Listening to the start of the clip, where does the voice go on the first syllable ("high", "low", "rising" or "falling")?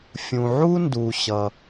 low